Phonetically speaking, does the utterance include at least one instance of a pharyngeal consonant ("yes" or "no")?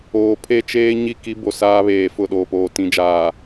no